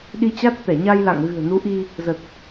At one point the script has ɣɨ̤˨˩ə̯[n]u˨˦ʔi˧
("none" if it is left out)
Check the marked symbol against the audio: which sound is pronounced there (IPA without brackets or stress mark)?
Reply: n